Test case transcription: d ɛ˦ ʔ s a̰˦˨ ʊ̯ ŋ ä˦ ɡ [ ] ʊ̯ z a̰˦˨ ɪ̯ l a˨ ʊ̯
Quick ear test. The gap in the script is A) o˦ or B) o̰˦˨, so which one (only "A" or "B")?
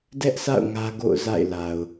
B